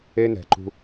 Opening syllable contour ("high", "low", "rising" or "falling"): high